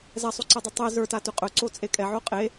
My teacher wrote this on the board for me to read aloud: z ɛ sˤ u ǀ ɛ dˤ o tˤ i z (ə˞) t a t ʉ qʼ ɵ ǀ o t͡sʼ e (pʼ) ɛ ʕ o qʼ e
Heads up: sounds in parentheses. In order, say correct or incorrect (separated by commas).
correct, incorrect